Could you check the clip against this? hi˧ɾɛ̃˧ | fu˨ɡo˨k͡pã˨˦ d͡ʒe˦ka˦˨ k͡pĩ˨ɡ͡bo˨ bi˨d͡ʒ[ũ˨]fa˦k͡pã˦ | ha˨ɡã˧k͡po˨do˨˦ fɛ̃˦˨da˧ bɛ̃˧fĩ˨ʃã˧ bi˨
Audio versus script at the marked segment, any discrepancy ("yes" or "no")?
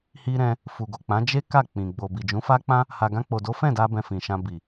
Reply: yes